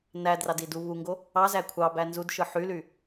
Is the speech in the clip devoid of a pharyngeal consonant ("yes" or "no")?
no